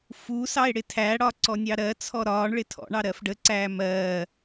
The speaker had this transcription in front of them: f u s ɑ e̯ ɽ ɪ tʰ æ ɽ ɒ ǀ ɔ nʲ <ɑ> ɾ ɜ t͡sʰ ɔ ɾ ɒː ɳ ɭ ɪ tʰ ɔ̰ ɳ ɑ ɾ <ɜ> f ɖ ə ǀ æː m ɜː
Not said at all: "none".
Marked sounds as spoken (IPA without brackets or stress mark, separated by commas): ɑ, ɜ